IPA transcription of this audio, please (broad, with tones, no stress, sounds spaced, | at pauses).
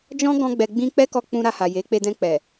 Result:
d͡ʒ ɔ̃˦ ɡ ɔ̃˦ ɡ͡b ɛ˧ ɡ͡b ĩ˦ k͡p ɛ˦ k ɔ˧ k͡p ũ˧ ɾ a˧ h a˨ j e˨˦ k͡p e˧ d ɛ̃˧ k͡p ɛ˨